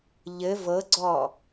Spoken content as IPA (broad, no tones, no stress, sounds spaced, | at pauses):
ʎ ɘ v ɤ ɡ͡ǀ ɔ